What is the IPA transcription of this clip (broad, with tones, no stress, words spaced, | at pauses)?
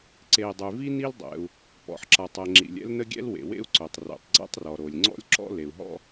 ǀe˩i̯dˤy˩vi˥ ni˥ldˤɛ̰˩u̯ | pɔ̰˩ħǁa˩tˤɛ˩ ŋ͡ǁḭ˩lʲɛ̰˥lnə˥ ɡʲɛ̰˥lwḛ˩ wḛ˥u̯ǀœ˩tˤ rɛ̰˩tˤɡ͡ǀɛ̰˥tˤrɔ˩ ɾo˩lʲŋ͡ǀɔ̰˥lʲǁɔ̰˥ le˩u̯ɦɔ̰˥